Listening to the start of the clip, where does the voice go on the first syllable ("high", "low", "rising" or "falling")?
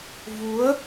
rising